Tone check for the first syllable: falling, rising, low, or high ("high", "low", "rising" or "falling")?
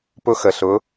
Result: high